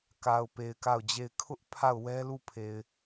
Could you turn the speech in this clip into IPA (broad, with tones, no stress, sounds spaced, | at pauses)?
k a˨ ʊ̯ p e˨ ɪ̯ k a˦˨ ʊ̯ d͡ʑ e˦˨ ɪ̯ kʰ ʊ˦ ʔ pʰ a˦˨ ʊ̯ w ɛ˦ l u˦˨ pʰ e˨ ɪ̯